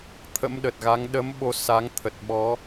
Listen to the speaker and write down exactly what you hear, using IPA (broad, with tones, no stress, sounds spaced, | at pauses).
t̪ʰ ə̰˧˥ m ɗ ə˨˩ t̚ ɣ a˨˦ ŋ ɗ ə˨˦ m ɓ o˧ s a˨˦ ŋ t̪ʰ ə˨˩ t̚ ɓ ɔ˨˦